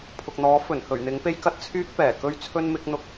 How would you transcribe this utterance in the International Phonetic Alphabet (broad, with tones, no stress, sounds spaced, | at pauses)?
pʰ ʊ˨ k̚ n̪ ɔː˨˥ f ɵ˨˩ n h ɵ˨˩ ɥ n̪ ɪ˨˥ ŋ p e˥ j k ɐ˥ t̚ t͡sʰ yː˥ k̚ p ɛː˨˩ k ɵ˥ ɥ t͡sʰ ɵ˥ n m ɪ˨˥ k̚ n̪ ʊ˨ k̚